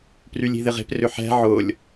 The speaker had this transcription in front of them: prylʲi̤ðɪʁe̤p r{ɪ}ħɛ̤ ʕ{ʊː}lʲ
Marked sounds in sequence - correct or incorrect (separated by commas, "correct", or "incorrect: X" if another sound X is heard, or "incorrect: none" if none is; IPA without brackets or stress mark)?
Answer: incorrect: ʏ, correct